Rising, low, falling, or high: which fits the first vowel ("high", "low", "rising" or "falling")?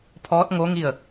rising